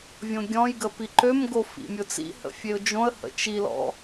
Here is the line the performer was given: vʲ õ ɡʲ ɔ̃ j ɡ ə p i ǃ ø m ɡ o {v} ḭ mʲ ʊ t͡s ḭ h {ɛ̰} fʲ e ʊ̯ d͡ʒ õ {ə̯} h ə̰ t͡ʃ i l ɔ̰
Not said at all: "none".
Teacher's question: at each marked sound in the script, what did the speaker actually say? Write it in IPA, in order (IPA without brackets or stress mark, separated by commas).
f, ə̰, ə̯